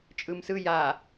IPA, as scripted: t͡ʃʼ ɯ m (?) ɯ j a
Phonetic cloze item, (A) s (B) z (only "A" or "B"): A